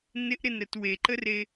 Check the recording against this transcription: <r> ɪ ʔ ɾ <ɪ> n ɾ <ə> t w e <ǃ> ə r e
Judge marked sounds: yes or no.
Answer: no, yes, yes, yes

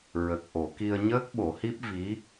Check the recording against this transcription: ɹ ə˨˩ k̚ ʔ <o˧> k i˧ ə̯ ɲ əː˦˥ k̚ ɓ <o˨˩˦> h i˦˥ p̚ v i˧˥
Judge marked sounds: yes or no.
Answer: no, yes

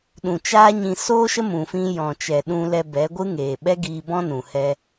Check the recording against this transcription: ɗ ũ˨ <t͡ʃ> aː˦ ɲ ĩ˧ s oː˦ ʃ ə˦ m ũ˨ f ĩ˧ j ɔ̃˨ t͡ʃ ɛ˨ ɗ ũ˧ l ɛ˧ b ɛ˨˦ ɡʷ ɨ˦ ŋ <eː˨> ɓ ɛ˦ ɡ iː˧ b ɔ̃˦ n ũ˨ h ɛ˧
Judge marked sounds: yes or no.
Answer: yes, yes

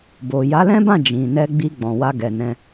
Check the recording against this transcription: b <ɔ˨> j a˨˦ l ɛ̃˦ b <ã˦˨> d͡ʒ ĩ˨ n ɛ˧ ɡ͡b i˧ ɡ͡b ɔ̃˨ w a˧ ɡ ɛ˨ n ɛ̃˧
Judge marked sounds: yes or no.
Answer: no, yes

